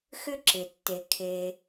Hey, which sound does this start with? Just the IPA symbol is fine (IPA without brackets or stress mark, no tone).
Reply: x